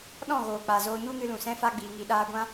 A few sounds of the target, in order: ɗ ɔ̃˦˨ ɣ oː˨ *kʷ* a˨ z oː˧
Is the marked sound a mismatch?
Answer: yes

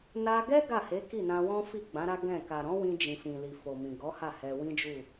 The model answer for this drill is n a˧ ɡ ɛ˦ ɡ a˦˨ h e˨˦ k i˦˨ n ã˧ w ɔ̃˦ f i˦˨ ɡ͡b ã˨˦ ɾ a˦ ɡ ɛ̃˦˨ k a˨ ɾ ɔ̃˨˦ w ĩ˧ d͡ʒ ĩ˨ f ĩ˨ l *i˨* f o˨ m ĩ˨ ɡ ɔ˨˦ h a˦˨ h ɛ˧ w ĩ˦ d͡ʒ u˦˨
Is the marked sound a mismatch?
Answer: no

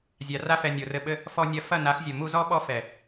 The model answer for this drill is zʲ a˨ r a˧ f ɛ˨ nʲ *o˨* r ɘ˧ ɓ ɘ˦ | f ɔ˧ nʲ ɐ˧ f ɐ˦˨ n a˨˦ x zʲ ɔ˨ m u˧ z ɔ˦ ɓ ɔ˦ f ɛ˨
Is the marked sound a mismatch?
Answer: no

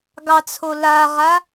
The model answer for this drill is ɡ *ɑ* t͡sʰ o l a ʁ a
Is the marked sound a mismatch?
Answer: no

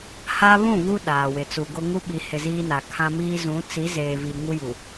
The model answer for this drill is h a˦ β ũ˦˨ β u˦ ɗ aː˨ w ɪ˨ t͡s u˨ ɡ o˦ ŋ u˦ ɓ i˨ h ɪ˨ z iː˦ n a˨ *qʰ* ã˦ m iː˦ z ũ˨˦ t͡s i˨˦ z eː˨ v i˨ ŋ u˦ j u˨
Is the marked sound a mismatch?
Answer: yes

